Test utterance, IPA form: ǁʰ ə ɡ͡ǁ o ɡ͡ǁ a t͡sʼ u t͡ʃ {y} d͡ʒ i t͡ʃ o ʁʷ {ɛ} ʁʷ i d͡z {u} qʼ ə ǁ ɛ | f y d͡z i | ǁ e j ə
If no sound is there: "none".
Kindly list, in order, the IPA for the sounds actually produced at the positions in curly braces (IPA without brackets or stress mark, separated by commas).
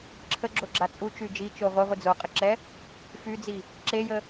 y, ɛ, o